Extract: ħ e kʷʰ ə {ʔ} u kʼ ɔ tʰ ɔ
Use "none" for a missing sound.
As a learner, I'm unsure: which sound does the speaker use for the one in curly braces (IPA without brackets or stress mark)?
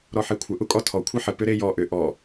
ʔ